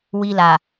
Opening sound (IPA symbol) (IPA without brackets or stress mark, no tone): w